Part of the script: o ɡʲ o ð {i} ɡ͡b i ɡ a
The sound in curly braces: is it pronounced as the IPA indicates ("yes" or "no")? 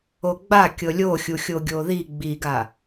yes